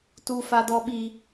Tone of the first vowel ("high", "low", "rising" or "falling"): high